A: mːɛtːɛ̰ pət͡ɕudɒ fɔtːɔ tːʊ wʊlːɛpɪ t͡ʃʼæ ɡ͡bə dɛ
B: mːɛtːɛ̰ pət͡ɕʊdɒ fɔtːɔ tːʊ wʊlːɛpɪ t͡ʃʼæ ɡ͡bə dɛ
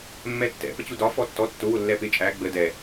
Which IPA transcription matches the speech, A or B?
A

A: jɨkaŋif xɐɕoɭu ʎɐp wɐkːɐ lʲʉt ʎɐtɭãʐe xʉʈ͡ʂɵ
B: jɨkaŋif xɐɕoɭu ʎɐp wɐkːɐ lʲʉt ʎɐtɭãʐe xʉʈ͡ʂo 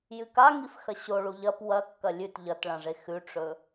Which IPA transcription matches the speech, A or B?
A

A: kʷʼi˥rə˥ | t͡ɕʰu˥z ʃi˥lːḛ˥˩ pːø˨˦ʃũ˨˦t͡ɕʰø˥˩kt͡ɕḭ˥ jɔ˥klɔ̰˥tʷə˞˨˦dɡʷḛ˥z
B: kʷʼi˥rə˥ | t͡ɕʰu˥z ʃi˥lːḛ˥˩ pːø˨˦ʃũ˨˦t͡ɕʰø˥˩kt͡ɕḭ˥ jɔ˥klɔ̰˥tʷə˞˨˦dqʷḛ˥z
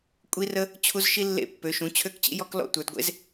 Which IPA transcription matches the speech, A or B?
A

